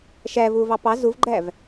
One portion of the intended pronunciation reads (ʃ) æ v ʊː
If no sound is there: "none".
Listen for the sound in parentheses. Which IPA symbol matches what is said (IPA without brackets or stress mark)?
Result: ʃ